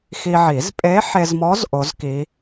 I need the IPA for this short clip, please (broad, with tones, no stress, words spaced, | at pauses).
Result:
xi˧ʕi˨˩˦z pʼe˧˥ħe˧zmɔ˧˥z ʔo˧˥zki˧˥